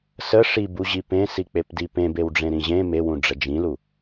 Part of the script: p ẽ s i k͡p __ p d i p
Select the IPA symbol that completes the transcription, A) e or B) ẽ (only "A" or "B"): A